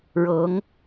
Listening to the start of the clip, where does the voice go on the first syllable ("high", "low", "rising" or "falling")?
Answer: rising